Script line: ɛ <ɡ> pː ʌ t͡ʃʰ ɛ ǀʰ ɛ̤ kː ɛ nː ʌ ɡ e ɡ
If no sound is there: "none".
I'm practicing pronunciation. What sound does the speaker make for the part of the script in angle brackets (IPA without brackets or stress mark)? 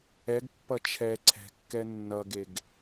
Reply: ɡ